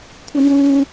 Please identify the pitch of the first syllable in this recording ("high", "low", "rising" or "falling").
high